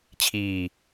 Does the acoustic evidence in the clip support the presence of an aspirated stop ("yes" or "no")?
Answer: yes